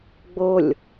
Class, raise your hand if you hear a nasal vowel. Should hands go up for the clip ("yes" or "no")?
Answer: no